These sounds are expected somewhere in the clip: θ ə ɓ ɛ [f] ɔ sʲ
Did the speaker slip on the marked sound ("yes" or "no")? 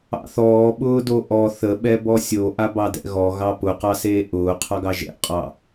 yes